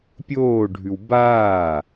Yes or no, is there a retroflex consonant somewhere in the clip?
yes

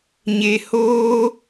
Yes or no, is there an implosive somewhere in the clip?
no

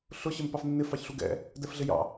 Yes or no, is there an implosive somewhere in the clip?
no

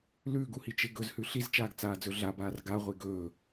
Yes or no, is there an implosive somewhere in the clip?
no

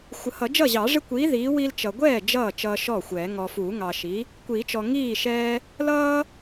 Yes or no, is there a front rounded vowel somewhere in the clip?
no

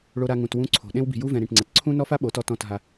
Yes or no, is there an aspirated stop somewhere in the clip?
yes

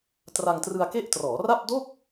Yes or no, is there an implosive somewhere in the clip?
no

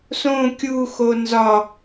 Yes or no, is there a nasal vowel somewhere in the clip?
yes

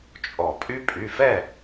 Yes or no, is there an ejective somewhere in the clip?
yes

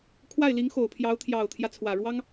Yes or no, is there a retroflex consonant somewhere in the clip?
yes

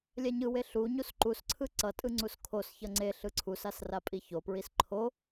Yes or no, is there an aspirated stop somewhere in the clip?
yes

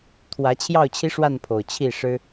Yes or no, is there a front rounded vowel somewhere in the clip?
no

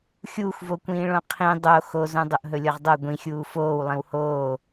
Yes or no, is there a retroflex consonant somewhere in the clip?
yes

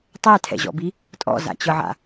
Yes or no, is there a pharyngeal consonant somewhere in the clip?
yes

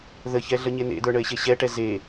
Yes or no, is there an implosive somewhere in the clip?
no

